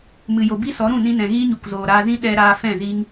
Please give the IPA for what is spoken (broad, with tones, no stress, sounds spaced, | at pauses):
m ɨ˨ j o˨ b i˦ s ɔ˨˦ ɾ ũ˦˨ n ĩ˧ n ɛ̃˨ ɣ iː˦ ɲ u˨ k z oː˨ ɾ aː˧ z ĩ˦ ɗ ɛ˧ ɾ aː˧ f ɛ̃˦˨ z iː˦ ŋ